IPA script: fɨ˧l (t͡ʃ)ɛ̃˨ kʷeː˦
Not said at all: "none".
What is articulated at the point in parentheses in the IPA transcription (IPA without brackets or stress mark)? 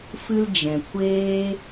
d͡ʒ